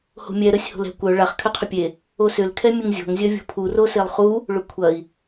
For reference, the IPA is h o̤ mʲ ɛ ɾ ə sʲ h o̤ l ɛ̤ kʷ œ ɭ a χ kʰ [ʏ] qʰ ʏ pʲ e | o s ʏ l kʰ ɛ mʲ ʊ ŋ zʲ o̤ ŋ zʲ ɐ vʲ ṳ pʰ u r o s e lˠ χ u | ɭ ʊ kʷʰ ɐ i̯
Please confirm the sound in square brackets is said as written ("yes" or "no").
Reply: yes